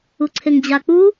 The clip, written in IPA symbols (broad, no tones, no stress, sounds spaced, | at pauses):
u ǀʰ e ŋ d͡ʑ a k͡p u